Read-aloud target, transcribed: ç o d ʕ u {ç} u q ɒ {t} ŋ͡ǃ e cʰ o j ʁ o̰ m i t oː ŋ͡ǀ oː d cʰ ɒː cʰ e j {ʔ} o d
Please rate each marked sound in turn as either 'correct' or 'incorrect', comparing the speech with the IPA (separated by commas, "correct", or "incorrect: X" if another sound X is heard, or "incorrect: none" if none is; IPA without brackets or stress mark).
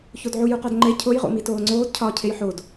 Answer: incorrect: j, incorrect: d, incorrect: ħ